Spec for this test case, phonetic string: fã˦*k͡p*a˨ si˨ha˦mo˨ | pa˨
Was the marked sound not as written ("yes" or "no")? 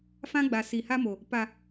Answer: yes